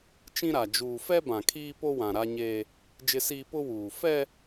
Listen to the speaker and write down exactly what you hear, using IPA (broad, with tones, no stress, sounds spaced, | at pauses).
t͡ʃ ĩ˦ ɾ a˨ d͡ʒ uː˨ f ɛ˦ b ã˨ kʰ iː˦ p o˦ w ã˨ ɾ a˦ ɲ eː˦ | d͡ʒ ɪ˦ s iː˦ p ʊ˦ w uː˨ f ɛ˦